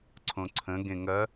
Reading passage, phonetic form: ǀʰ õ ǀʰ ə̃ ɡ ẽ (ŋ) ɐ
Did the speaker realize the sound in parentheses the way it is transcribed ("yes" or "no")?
yes